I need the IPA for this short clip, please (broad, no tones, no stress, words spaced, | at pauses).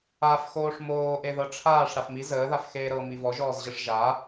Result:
af xoːʂmoː ʔeðɤʈ͡ʂʰaːʂ ɽafmi zəːðaf xeːɾɤ mivɔʒɔːzʑəʂ ʒa